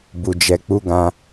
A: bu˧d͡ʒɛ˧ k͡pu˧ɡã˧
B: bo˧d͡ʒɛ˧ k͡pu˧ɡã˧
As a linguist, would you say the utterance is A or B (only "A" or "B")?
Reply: A